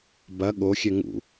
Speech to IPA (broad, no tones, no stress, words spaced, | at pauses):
bɐ ɠoxʲɛ ŋṵ